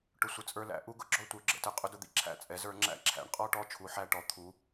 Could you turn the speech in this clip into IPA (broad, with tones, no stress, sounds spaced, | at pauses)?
ʈ ʊ˦ sʷ ɪ˦ t͡sʼ ə˞˦ l æ̰˨˥ ʔ u˦ ɡ ʊ˦ ɡ͡ǁ ɔ˦ tʷ ə˞˨˥ ɡ͡ǁ ə̰˦ t ə˨˥ qʼ ʊ˦ d ʊ˦ d̪ ḭ˦ ǁʰ æ̰˦ t͡sʼ ɛ˨˥ z ə˞˨˥ ŋ͡ǁ æ̰˦ ǁʰ æ̰˨˥ ɳ qʼ ɔ˦ ʈ ɔ˦ t͡ʃʰ u˨˥ ħ æ˦ ʈ ɔ˨˥ t̪ʰ u˨˥